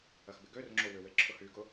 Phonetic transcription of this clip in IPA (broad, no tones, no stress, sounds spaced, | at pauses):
ɐ x b ɪ ɡ ø r ŋ͡ǁ o w ʏ w e ǁʰ ʊ h y ɡ ʊ